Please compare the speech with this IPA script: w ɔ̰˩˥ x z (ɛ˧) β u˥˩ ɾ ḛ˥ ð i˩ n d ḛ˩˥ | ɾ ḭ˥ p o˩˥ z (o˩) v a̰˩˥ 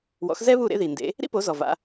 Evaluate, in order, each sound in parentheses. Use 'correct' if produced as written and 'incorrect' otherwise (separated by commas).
incorrect, incorrect